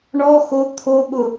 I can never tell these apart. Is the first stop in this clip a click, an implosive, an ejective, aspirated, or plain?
aspirated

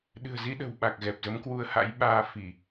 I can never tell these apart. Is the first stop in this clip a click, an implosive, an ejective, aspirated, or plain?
implosive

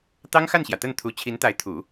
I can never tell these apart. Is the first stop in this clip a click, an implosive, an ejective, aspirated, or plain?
plain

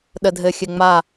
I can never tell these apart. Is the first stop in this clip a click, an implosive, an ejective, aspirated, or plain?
implosive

